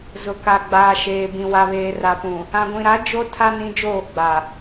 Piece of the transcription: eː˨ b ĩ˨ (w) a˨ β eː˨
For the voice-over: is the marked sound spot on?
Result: yes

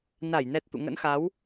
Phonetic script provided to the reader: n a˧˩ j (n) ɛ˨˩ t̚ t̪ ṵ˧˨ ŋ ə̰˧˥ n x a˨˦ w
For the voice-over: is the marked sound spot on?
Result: yes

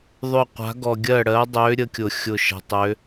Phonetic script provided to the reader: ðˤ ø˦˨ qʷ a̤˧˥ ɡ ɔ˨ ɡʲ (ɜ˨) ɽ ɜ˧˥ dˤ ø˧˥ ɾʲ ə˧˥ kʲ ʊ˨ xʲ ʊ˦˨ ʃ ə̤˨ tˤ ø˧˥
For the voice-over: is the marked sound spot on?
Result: no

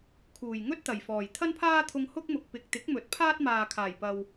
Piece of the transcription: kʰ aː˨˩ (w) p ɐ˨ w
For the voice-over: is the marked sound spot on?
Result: no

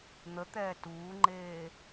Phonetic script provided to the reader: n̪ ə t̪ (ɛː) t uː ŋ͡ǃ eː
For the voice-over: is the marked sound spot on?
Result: yes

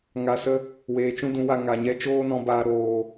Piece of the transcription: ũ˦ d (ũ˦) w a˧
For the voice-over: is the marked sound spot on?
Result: no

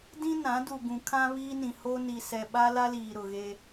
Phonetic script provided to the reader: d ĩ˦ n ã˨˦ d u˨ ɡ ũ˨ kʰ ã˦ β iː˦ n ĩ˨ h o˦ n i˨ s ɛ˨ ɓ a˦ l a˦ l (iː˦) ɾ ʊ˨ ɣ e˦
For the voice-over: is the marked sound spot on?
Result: no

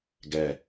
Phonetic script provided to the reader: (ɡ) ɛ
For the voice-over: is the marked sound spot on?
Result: yes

